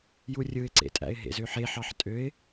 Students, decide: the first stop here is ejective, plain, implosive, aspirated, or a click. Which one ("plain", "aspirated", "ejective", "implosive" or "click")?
click